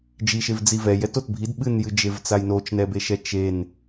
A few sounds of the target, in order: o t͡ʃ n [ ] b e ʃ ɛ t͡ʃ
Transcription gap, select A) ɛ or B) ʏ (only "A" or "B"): A